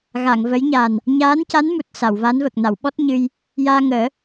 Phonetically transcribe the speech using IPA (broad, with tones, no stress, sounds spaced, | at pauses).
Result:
ɣ a˨˩˨ ŋ v ə˧˥ j ɲ a˨˩ n | ɲ aː˧˥ n c a˧˥ n m u˨˩ t̚ s a˨˩˨ w v a˧˥ n v ə˨˩ k̚ n a˨˩˨ w ɓ ɔ˦˥ t̚ ɲ ɨ˧ j | j aː˧ ŋ əː˨˩˦